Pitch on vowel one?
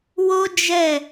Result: high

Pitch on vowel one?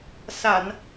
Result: low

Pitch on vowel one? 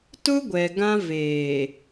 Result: high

